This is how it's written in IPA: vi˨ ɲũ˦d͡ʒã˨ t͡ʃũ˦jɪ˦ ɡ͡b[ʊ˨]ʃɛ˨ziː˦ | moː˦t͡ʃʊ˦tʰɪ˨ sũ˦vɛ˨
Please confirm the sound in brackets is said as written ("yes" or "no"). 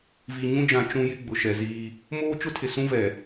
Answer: yes